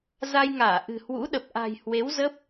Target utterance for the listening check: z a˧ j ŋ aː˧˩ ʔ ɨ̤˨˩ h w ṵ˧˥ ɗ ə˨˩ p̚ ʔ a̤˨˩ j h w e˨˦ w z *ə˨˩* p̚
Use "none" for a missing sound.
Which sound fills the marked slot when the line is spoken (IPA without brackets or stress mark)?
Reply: ə˦˥